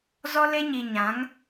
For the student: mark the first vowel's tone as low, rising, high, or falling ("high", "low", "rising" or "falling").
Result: high